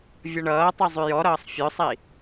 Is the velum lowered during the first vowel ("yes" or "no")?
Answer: no